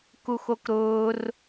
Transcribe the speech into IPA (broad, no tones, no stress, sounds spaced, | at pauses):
k u x o k ɾ ʊː r